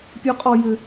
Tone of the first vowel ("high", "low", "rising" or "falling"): high